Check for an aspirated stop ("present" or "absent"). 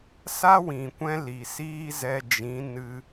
absent